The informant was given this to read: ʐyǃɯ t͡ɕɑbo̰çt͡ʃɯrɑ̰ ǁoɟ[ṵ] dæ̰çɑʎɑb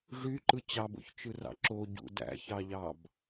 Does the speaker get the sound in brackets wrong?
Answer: no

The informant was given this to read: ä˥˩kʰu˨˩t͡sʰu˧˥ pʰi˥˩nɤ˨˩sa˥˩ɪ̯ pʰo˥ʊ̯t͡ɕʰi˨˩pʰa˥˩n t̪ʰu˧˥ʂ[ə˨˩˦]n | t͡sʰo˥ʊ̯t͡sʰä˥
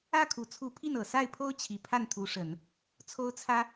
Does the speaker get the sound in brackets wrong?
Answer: no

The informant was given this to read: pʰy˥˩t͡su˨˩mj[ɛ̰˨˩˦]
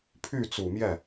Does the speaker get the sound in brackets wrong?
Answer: yes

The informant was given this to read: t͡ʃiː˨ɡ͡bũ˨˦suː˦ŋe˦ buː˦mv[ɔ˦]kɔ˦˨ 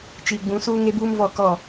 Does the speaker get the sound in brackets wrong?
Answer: yes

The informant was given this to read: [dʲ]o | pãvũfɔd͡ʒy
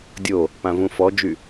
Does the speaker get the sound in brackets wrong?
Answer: no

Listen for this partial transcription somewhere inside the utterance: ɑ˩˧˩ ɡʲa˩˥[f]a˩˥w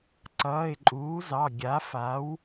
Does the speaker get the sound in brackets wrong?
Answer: no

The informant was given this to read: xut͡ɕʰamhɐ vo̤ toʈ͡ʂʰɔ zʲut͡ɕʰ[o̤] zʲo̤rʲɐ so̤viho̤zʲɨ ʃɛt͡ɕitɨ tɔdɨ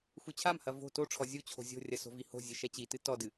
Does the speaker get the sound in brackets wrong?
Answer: no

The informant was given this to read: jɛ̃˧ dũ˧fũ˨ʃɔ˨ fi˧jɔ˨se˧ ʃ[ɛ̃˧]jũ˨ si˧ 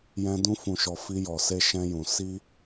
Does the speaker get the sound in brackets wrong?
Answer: no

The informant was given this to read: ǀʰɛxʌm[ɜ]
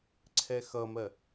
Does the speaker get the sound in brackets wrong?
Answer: no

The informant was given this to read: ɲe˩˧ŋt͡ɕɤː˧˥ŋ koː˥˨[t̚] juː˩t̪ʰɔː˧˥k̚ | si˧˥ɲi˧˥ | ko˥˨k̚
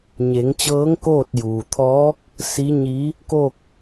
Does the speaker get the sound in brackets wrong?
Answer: no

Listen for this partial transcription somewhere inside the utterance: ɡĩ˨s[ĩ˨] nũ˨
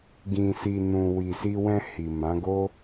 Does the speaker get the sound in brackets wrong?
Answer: yes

